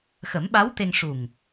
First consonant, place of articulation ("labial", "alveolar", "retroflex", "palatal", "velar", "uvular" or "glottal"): velar